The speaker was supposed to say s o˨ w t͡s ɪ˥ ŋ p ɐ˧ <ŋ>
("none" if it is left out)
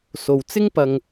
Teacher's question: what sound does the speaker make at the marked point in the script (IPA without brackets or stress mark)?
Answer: ŋ